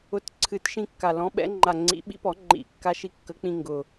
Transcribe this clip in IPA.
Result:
ʊ˨˥ t ǀʰ ɨ˨˩˦ t ʃ ĩ˧ kː a˨˩ l ɔ̃˨˥ ɓ ɛ̰˨˥ ŋ͡ǃ a˨˩ ŋ͡ǀ ḭ˨˩˦ ɓ ḭ˨˩˦ p ɔ˨˩˦ ŋ͡ǃ ḭ˨˩˦ kː a˧ ʃ i˧ kː ə˨˥ k͡p ĩ˧ ŋ ɡ ʊ˨˩

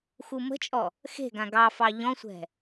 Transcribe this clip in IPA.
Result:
x u m ə̤ t͡ʃʼ ɔ | x e̤ ɡ ã ɡ ɑ f ɑ ʎ ɔ̃ sʷ ɛ̤

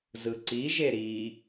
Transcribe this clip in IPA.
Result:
z ɯ ǀ i ʒ e ɾ i

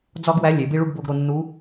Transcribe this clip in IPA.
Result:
d͡z ɒ˥ ɡ w æ˧˥ lʲ e˩˧ b i˥ ɭ u˥ ɡ b o˧ ɡ ɾ o˧ nː u˧˥

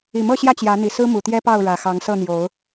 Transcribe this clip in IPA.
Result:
i˨˩ m ɤ˥˨ ɕ j ä˥˨ t͡ɕ j ä˨˦ n̪ i˨˩ s ɹ̩˦ m u˨˩ t̪ j ɛ˦ p ɑ˥˨ ʊ̯ ɻ ä˨˩ x ɑ˨˦ ŋ s ɤ˥˨ n̪ j o˨˦ ʊ̯

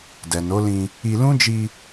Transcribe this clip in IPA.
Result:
d ɛ˨ n o˨˦ l ĩ˧ | i˧ l ũ˦ d͡ʒ i˧

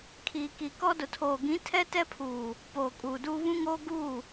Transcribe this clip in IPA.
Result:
kʰ iː˨ k i˨ k ɔ˦ d ʊ˨ tʰ oː˨ ɡ ĩ˨˦ tʰ ɛ˦ t ɛ˦ pʰ uː˨ | p oː˨ kʼ uː˨ d uː˦ β ũ˦ ŋ oː˦ ɡ uː˦˨

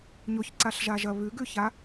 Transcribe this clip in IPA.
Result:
ɲ o ç ǀ a ɬ ʒ a ʒ ɐ β ʉ ɡ ʉ ç a

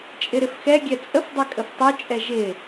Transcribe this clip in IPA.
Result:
t͡ʃʼ ɪ ɾ ɪ f x ɛ ɡʲ ɛ t͡sʼ ə f dˤ ɛ kʼ ə f tˤ o t͡ʃʼ ɛ ʒ ɪ

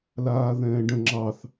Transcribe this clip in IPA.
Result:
l aː ð ɛ̃ː ɖ ə̃ ŋ͡ǁ ɑ θ

